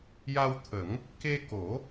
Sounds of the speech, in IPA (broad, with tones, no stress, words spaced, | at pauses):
ja˧wt̪ʰə˨˩˦ŋ | ke˧ko˨˩˦